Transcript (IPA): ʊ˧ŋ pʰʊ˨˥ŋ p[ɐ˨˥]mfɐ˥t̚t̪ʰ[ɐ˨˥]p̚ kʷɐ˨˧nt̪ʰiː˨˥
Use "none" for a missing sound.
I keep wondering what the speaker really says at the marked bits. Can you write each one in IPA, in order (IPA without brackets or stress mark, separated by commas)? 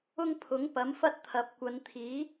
ɐ˨˥, ɐ˨˥